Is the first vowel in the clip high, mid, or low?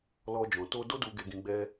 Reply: mid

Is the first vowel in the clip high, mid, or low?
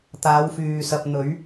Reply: low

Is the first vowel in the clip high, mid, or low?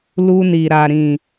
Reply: high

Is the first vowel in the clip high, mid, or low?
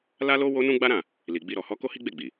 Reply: low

